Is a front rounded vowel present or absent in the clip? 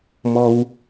absent